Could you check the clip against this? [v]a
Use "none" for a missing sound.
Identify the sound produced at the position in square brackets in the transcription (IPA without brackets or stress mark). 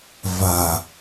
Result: v